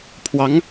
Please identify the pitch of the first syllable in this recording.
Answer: rising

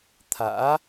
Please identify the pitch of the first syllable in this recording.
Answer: rising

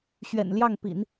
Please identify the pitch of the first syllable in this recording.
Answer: low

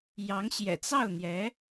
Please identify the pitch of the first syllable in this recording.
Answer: rising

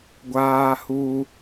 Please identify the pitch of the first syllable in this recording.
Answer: high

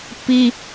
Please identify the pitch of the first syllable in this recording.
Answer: high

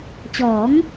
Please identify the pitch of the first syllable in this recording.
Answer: rising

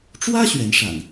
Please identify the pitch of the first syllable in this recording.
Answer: high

